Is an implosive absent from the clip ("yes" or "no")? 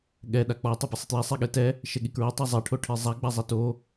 no